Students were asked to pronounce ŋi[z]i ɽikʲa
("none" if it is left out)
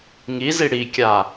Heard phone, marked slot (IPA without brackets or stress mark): z